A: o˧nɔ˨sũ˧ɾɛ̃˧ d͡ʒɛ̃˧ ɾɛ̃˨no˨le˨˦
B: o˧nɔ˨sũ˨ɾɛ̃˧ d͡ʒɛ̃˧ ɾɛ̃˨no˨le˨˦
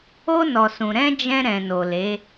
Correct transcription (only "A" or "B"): B